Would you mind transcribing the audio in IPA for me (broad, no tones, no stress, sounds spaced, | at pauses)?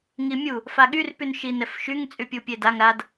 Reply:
ŋ i mʲ u | f a ɠ y r p y n ʃ i n ɛ f ʃ y ŋ t͡sʼ y pʲ u pʲ e d a ŋ ɾ a d